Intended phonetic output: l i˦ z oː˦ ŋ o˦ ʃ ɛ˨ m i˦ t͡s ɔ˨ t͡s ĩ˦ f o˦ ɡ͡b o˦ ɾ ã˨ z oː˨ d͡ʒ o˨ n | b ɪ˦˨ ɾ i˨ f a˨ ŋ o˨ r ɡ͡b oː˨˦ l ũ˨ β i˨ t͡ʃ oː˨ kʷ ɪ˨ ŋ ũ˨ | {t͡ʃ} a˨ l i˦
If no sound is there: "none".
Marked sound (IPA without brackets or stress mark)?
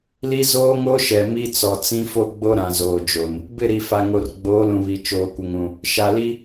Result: ʃ